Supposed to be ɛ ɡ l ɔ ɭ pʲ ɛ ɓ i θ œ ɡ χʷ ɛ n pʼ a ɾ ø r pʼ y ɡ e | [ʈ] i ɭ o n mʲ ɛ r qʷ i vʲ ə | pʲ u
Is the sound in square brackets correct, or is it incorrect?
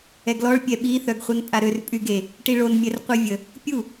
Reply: correct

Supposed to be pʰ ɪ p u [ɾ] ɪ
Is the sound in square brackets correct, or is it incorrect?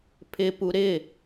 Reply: correct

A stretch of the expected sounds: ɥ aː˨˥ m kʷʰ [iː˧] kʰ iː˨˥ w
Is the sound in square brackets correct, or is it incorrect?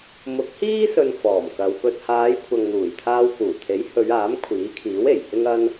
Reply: incorrect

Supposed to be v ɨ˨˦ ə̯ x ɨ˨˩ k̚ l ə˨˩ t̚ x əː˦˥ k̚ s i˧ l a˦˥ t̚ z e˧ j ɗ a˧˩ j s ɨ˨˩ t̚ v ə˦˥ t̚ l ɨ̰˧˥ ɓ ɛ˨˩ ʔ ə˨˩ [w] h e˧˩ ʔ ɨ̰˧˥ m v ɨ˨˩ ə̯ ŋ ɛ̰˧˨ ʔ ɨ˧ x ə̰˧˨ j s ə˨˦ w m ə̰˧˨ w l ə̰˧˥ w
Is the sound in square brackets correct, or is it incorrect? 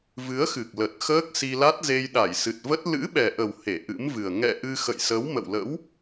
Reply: correct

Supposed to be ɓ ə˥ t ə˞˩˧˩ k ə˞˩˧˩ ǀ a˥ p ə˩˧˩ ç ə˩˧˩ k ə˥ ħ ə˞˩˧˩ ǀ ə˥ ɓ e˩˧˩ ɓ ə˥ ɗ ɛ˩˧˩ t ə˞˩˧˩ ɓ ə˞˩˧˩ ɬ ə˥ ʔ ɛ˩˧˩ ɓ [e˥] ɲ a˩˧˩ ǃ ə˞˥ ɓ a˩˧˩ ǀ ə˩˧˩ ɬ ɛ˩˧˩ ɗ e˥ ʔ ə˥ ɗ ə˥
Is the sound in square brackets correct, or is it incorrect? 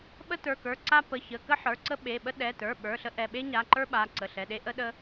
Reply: correct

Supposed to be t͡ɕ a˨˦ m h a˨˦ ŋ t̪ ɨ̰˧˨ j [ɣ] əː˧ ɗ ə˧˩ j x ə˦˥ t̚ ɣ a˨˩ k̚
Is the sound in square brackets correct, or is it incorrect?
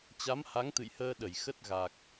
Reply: incorrect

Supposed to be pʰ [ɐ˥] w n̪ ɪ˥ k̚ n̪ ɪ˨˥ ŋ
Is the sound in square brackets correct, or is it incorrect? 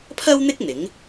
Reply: correct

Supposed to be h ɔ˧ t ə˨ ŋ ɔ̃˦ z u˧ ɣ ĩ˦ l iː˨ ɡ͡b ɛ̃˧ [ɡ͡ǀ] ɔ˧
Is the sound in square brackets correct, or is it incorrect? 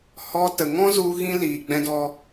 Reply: incorrect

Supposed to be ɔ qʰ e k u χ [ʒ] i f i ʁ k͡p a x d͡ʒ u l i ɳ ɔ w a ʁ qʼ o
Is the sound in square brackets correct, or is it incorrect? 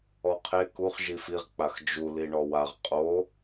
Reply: correct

